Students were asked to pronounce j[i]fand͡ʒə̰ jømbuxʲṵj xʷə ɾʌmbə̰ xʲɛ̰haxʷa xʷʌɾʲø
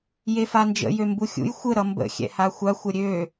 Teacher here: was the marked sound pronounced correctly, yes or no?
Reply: no